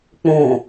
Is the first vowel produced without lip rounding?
no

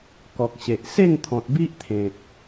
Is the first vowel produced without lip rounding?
no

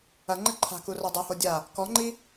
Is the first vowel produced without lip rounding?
yes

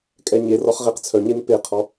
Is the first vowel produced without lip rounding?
yes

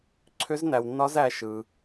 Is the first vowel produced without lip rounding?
no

